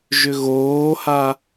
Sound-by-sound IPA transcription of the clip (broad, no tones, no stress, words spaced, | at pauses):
ʒʏɣoːha